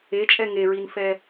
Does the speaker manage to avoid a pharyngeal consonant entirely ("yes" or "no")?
yes